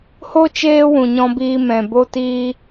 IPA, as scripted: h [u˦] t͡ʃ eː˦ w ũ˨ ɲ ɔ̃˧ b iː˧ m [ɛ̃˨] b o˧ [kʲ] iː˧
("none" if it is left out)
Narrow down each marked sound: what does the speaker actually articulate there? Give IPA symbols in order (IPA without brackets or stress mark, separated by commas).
o˦, ɛ̃˨, t